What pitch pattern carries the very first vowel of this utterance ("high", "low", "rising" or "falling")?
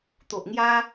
low